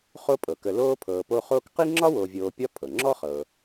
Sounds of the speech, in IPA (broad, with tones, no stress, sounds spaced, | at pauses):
χ o˦ pʼ ɤ˩ k ə˨ l oː˦ pʰ ɤː˨ p o˦ χ oː˦ k q i˥ ŋ͡ǁ ɒ˥ w o˨ vʲ oː˨ pʲ ɒ˦ pʰ ɤ˩ ŋ͡ǁ ɔ˥ χ ɤː˨